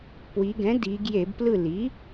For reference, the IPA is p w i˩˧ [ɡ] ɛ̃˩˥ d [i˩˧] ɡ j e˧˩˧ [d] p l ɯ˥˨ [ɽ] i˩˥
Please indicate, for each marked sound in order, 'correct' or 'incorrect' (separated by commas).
correct, correct, incorrect, incorrect